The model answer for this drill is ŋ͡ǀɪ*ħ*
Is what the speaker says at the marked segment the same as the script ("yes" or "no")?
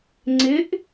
no